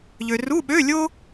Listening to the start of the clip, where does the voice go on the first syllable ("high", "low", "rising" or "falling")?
low